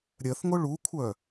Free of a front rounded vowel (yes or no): no